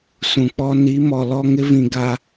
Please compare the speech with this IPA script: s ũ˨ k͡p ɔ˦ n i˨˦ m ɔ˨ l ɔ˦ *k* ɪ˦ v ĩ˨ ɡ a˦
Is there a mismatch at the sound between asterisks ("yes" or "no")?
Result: yes